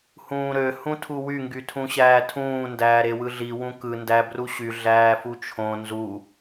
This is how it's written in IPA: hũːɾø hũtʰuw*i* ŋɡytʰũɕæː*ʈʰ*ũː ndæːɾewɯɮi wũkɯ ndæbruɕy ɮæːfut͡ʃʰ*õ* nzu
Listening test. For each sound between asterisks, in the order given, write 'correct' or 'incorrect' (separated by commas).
incorrect, incorrect, correct